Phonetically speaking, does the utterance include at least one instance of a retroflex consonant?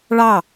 yes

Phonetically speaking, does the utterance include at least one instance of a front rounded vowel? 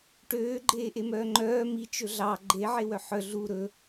yes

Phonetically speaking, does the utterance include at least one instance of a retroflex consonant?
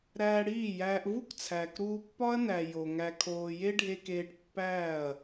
yes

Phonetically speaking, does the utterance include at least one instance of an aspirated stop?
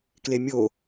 no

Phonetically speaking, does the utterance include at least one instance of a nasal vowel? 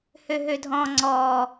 yes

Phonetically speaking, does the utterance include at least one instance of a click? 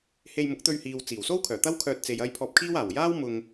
no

